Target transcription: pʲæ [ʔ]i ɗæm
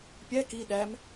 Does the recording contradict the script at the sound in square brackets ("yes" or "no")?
yes